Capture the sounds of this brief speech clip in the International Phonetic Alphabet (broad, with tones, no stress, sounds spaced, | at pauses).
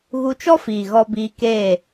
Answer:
ɣ u˧ t͡ʃ ɔ˦ f iː˨ ɣ ɔ˧ b iː˧ k eː˦˨